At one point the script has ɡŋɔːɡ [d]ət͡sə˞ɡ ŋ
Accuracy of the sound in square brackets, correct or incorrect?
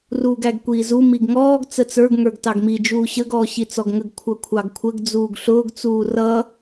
incorrect